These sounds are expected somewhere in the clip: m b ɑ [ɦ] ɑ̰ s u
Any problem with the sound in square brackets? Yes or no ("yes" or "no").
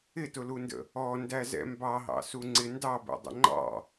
no